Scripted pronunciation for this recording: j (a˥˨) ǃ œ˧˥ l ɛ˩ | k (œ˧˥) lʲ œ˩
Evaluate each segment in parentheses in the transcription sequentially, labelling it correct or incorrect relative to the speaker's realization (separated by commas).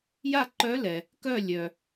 correct, incorrect